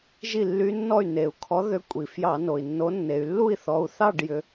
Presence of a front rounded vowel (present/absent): present